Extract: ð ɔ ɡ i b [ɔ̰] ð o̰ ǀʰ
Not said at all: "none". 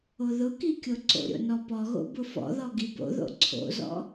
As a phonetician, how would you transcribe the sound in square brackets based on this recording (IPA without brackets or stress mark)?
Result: o̰